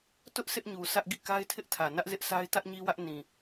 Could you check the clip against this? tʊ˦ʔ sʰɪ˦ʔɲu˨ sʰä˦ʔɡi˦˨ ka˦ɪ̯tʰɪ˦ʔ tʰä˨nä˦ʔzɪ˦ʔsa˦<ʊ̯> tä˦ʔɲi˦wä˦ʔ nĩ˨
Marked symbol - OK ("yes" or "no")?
no